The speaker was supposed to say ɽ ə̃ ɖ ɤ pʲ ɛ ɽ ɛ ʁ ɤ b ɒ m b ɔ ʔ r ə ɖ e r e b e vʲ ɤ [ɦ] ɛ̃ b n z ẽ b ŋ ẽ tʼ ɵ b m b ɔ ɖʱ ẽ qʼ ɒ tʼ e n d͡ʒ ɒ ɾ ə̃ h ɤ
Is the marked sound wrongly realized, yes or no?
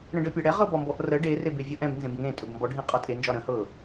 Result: yes